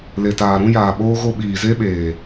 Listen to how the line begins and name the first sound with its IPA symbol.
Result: l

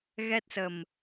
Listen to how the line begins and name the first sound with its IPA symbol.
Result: ɣ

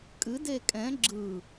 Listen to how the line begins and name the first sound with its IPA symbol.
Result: kʼ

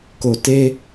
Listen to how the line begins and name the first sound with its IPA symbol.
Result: k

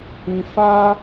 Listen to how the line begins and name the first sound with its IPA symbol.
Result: ĩ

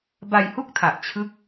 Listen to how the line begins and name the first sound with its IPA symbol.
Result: b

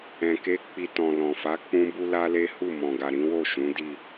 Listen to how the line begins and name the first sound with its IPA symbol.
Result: ɛ̃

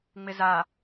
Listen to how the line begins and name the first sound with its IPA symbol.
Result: ŋ͡m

